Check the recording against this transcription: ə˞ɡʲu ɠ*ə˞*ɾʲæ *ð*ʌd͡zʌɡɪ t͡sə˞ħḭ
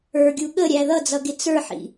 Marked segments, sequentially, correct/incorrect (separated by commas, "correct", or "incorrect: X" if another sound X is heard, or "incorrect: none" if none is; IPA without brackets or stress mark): incorrect: ə, correct